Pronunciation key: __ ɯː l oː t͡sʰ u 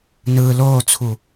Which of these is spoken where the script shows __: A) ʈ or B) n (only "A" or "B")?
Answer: B